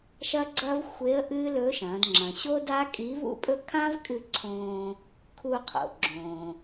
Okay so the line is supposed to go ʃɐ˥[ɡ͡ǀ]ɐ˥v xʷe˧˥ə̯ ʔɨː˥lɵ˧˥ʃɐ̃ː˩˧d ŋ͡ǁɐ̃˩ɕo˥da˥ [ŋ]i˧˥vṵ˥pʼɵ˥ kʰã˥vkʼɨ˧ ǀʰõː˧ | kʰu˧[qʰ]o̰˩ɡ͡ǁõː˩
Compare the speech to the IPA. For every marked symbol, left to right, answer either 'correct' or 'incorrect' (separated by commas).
correct, incorrect, correct